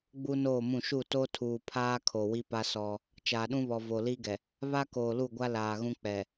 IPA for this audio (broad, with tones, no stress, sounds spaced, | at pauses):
ɡ͡b u˦ n oː˦˨ m ũ˦˨ ʃ u˦˨ t o˦ tʰ uː˨ pʰ aː˦ kʰ o˨ w i˦ p a˦ s ɔ˦ | t͡ʃ aː˨ ɗ ũ˦ β ɔ˨ v o˨ l i˦ ɡ ɛ˨ | β a˦ k oː˨ l u˦˨ ɡʷ a˦ l aː˨ ɣ ũ˦ k͡p ɛ˨